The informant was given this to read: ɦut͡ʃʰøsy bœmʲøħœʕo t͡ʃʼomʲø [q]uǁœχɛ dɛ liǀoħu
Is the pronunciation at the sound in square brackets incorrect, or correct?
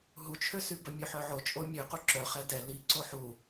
correct